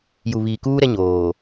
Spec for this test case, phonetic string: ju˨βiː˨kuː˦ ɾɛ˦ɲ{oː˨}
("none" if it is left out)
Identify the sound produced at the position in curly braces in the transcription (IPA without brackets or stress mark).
oː˨